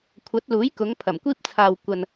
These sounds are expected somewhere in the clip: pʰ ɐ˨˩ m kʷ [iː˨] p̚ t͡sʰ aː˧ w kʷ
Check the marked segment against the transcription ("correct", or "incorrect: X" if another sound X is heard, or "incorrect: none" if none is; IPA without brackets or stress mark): incorrect: iː˥